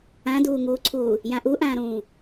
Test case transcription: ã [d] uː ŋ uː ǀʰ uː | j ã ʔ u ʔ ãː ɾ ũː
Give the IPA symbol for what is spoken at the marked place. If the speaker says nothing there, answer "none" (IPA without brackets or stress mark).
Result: d